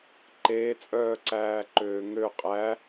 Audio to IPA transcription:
ǃeːt͡sʼœːǀæːǃøː ŋø qʼæ

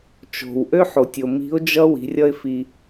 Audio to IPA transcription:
t͡ʃo̤˩w ʔø˥ħo˩tʲ o˩ mi̤˧˥ʊ̯d͡ʒʌ˥wi̤˩˧ rʲʌ˥ɪ̯fi˧

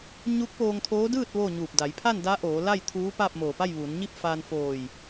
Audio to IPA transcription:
ɲu˧˥k̚ poː˧ŋt̪ʰoː˧˥dɯː˥˨t̚ ʋoː˥˨ɲuː˧˩p̚ da˩˧jpʰa˥˨n da˧˥ʔoː˩˧ la˥˨jt̪ʰuː˧˥ paː˥˨p̚moː˧˩pa˥˨j ʋuː˩˧nɲi˥˨p̚ faː˧nfoː˧˩j

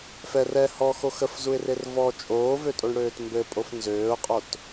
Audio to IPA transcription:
fɛr ɛ hɔxo xəfzuɪ̯rer vɔ t͡ʃʼoːvøtʼoɳɽøːt mbɘpʼof nzøːʊ̯qʼot

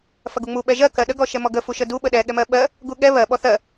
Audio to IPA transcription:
fɐɡuŋ͡mu ɓɛʒɜ kɜɗə ɡɔʃɛmɔɡə fuʃədu ɓəɗɛ ɠɛmɜɓɜ | ɡuɠɛ βɜ ɓɔθɜ

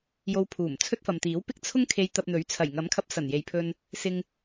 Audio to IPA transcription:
jo˧wpʰuː˨˩m t͡sʰɵ˥t̚ fɐ˨mt̪iː˨˥wpɪ˥k̚ t͡sʰʊ˥ŋkʰe˧j t̪ɐ˧p̚n̪ɵ˨˥ɥ t͡sʰɐ˨˩jŋɐ˨˥mkʰɐ˧p̚ sɐ˨˩nje˨jpʰɵ˧n | sɪ˧ŋ

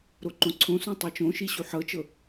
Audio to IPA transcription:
ɾoǃõǀʰõsũ tˤɤt͡ʃõʃi ɕuħɤt͡ʃɤ

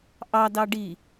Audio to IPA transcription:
ʔɑdɑ ɖi

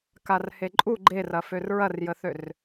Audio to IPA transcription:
karheǃʼu ɡ͡ǃerɐfør ɹɐrjəθør

